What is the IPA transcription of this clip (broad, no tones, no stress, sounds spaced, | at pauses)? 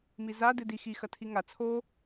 m i z a d ɨ d i x i x ɐ tʰ i ŋ a t͡sʰ o